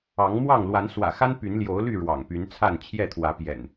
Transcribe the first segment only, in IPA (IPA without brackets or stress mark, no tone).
ɑ